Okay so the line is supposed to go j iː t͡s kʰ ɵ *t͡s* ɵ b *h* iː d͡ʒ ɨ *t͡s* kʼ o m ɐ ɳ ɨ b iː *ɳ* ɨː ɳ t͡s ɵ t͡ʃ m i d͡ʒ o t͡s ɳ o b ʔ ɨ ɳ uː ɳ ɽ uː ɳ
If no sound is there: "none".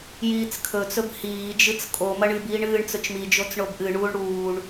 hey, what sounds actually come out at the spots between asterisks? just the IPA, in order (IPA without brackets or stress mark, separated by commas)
t͡s, h, t͡s, ɳ